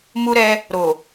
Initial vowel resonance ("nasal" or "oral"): oral